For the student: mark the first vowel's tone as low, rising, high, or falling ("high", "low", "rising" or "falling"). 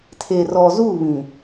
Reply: low